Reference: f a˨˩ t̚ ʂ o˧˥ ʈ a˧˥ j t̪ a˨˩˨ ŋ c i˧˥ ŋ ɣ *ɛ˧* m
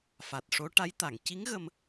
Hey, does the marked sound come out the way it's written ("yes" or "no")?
no